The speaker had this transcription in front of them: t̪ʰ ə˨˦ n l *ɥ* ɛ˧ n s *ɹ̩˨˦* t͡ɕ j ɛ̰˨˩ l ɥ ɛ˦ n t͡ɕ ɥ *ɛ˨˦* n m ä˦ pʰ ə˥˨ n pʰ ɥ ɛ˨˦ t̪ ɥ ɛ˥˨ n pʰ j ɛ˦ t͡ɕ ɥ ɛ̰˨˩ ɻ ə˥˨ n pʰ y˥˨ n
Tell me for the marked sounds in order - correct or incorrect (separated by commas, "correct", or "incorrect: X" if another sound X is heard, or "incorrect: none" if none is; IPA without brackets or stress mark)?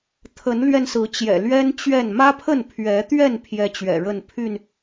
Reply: correct, correct, incorrect: ɛ˥˨